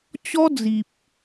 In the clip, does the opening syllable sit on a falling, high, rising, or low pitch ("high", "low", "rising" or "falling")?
high